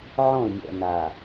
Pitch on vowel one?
falling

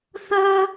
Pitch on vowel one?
high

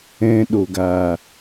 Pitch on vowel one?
high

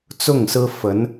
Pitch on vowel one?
falling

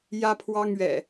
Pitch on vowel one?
high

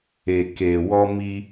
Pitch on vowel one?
low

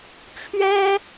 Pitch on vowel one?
high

